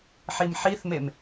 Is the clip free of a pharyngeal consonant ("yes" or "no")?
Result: no